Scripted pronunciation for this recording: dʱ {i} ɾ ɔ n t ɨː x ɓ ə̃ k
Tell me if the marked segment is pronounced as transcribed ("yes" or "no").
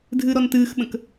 no